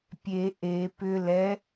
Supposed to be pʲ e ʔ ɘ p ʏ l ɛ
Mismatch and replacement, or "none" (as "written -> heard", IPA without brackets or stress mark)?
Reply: ɘ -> e